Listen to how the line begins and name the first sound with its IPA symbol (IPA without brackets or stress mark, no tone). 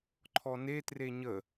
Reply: ǃʰ